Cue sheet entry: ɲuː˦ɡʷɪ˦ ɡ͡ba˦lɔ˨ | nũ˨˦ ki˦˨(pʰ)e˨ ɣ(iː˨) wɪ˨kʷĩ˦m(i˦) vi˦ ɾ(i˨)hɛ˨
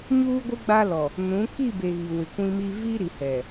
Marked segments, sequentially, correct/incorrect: incorrect, incorrect, correct, correct

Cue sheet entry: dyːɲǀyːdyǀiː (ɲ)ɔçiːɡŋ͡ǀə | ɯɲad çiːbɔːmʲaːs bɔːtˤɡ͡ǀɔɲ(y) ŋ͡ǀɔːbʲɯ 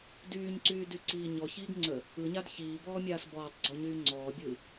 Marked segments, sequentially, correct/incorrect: correct, incorrect

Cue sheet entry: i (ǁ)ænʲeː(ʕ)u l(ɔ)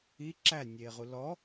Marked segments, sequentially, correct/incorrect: correct, incorrect, correct

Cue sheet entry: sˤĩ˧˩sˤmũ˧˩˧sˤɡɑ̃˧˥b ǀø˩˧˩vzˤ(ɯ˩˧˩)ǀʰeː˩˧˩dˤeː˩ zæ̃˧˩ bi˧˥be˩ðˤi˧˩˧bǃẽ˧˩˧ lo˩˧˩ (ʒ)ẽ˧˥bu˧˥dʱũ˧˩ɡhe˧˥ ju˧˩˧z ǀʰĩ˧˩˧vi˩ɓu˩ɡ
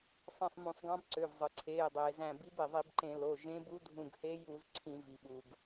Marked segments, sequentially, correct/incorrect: incorrect, correct

